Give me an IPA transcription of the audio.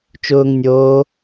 t͡ʃ ʊː ŋ nʲ oː

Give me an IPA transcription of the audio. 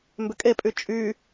m b ʏ kʼ e pʼ y t͡ʃʼ y

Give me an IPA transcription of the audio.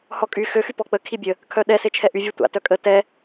h ɔ kʼ y x ø x y p ɔ k͡p ə kʰ i bʲ ə | kʰ œ ɗ ɛ s e t͡ʃʰ ɛ ʔ y vʲ ø tʷ a̰ t œ kʼ ə t ɛ

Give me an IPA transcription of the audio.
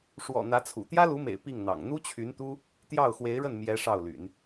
ʂ w ɔ̰˨˩ n̪ ä˧˥ t͡sʰ ṵ˨˩ t̪ j ä˥ l u˧˥ m ḛ˨˩ ɪ̯ p i˥˩ ŋ n̪ ɑ̰˨˩ ŋ n̪ u˥ t͡ɕʰ y˧˥ n t̪ u˥ | t̪ j ɑ˥˩ ʊ̯ x w e˧˥ ɪ̯ ɻ ə˥˩ n m j ɛ˧˥ ʂ ɑ˥˩ ʊ̯ l y̰˨˩˦ n

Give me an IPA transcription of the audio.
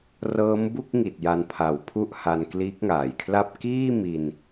r ɤː˦˥ m b u˥˩ k̚ ŋ i˨˩ t̚ j a˧ n pʰ a˨˩ w pʰ u˦˥ ʔ h a˧ n k l iː˦˥ k̚ ŋ aː˨˩ j kʰ l a˥˩ p̚ k iː˥˩ m i˧ n

